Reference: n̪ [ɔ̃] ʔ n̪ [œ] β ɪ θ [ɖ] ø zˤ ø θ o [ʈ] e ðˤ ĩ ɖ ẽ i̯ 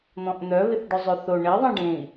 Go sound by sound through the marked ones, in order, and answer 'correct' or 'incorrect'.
correct, correct, correct, incorrect: ɳ

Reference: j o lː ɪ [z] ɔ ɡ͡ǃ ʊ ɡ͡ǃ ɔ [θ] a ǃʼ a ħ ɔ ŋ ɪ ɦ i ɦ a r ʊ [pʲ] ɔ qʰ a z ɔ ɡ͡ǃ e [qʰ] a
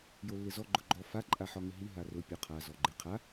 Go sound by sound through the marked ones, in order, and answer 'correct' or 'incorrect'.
correct, incorrect: f, correct, correct

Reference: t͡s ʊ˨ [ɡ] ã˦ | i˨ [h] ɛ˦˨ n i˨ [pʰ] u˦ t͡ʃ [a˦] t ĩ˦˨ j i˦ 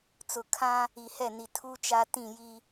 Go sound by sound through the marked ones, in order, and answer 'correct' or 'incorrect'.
incorrect: kʰ, correct, incorrect: tʰ, correct

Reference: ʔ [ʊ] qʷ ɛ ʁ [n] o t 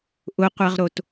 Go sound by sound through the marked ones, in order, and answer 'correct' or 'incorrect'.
correct, incorrect: ɾ

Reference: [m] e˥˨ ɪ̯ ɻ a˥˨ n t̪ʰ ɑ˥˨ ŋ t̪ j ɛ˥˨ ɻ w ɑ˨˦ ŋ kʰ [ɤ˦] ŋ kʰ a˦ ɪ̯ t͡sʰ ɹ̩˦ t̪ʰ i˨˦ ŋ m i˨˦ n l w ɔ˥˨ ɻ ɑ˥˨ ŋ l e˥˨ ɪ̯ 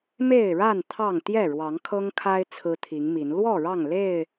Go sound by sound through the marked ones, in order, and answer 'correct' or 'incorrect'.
correct, correct

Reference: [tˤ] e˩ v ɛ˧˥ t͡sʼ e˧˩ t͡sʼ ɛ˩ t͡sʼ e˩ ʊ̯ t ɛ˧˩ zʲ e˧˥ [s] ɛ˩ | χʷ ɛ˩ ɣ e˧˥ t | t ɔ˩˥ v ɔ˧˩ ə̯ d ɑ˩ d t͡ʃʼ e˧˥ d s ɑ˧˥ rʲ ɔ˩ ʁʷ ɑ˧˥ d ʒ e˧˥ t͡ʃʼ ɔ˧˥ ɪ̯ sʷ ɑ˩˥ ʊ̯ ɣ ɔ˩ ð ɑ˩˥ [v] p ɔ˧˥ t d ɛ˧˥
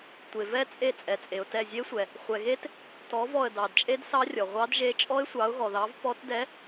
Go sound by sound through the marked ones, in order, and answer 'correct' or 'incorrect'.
incorrect: tʷ, incorrect: sʷ, correct

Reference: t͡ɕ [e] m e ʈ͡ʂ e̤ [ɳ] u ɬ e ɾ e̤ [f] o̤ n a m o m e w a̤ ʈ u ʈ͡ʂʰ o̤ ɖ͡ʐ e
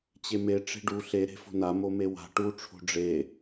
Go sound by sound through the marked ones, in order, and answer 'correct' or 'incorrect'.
correct, incorrect: ɖ, correct

